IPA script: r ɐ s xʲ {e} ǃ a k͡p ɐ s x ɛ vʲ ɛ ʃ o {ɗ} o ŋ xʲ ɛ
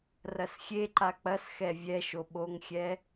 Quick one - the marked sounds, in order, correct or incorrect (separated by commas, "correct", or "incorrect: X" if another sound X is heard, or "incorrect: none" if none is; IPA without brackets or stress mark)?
correct, incorrect: ɓ